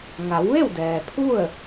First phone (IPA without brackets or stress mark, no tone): ŋ